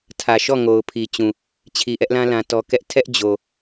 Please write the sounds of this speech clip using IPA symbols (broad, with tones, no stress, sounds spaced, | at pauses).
tʰ ä˨ ʃ ɔ˦˨ ŋ o˨ ʊ̯ pʰ i˨ t͡ɕ ũ˨ | t͡ɕʰ i˨ ʔ ɛ˦ ʔ l ã˦ l ã˦ t ɔ˦ k ɛ˦ ʔ tʰ ɛ˦ ʔ d͡ʑ o˨